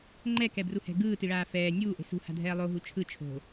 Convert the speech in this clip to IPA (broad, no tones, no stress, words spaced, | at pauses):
ŋ͡ǃɛkɛbruhɛ̤ ɡɯːtiɭaː fɛː nʲuːʔe̤ sṳha̤dʱɛː lˠoɦu t͡ʃʰɯ t͡ʃʰo̤